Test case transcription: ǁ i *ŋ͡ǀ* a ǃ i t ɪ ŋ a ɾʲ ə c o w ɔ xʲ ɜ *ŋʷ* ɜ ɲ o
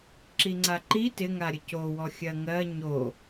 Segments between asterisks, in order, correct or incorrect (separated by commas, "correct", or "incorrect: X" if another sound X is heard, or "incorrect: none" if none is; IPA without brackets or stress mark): correct, incorrect: ŋ